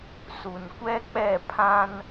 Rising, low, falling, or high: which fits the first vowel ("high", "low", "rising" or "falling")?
low